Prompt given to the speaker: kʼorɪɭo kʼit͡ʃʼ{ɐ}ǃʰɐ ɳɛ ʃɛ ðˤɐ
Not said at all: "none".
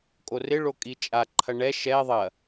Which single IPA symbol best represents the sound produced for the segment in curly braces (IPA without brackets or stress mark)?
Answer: a